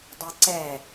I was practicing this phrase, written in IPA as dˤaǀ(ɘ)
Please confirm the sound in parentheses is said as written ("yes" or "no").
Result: no